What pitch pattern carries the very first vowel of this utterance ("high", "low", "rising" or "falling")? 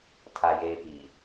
low